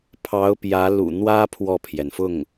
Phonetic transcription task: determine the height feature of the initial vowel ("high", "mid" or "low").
low